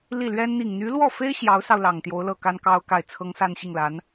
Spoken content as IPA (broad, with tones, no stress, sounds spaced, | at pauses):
l i˥˩ l ɥ ɛ˥ n n̪ i˨˩ ŋ n̪ y˧˥ l w ɔ˥˩ f e˥ ɪ̯ ɕ j ɑ˧˥ ʊ̯ s ɑ˧ ʊ̯ l ɑ˨˩ ŋ t̪ j o˧˥ ʊ̯ l ɤ˥˩ k a˥ n k ɑ˥ ʊ̯ k a˥˩ ɪ̯ t͡sʰ ɤ˥ ŋ s a˥˧ n ɕ i˥˩ ŋ l a˧˥ n